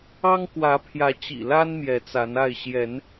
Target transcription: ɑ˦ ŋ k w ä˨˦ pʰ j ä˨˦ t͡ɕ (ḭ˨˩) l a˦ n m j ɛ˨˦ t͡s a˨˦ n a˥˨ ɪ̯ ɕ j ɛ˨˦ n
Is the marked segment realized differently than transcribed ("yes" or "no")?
no